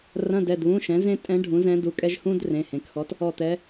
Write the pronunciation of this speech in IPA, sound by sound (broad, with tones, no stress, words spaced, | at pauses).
rɐ̃˧˥˧dɛ˩˧˩dβũ˧˥˧ ʃɛ̃˩˥zẽ˥ tʼɛ̃˧˥ ɖʱũ˩˥zɛ̃˧˥du˩˧˩kʼɛ˥ʒ hũ˥d rẽ˩˧˩hẽ˩˧˩kxɔ˧˥t | ɔ˦˨t̪ɛ˧˥